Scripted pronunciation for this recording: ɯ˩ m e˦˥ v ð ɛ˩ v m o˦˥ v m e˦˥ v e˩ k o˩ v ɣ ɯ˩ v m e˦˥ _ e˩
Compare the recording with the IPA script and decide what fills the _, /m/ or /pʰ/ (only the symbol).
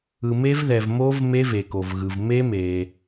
m